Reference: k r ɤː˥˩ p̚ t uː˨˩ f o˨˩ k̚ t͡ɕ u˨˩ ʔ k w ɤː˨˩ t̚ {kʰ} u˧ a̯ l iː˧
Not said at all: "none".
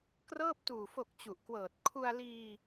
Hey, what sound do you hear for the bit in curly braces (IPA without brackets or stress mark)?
kʰ